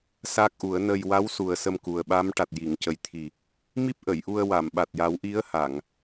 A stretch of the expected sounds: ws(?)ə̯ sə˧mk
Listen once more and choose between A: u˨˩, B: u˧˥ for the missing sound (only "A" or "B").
A